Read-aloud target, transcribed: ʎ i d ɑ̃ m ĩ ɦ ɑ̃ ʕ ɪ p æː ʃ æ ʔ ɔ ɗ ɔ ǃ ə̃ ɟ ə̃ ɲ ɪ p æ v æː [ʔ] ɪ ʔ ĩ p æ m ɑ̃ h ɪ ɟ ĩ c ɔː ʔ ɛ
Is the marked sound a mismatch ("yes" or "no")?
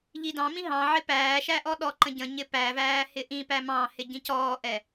yes